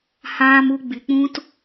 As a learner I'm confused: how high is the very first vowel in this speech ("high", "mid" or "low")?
low